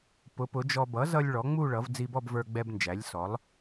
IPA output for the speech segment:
pʊ˩˥pʊ˩˥d͡ʒɔ˧ bʌ˩˥zʌ˧lʲ ɭɔ˩˥ŋ͡mu˥˧ɭʌ˩˥v d͡zi˧bɔ˥˧bvə˞˧ɡ͡bɛ˧b nd͡ʒæ˩˥lʲsɔ˩˥lˠ

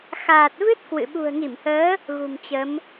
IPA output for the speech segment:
xaː˨˩t̚vɨ˦˥t̚ kwɨ̰˧˨ ɓṳ˨˩ə̯ŋi˧˩mhəː˨˦ | ɣṳ˨˩mt͡ɕə˨˦m

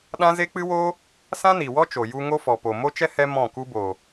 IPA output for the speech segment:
ɗã˦ze˦k͡pɨ˦woː˦ | sã˦ni˨ wɔ˦t͡ʃo˨ju˧ ŋo˦fɔ˨ po˨ mo˦t͡ʃɛ˦ hɛ˦ mɔ̃˦˨ku˦ boː˨

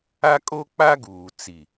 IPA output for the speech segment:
a˦kʼo˦k͡pa˦ɡuː˨ t͡si˨

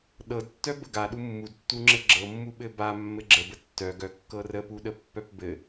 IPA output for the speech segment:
ɗɤdtːœ bəɡaɗu mːudtːuŋ͡ǁɘ ɡ͡ǁɤmːuɓɘ ba mːɘɡ͡ǁəbə tːœɡœ kːɤrəpuɗə pːœpbɘ

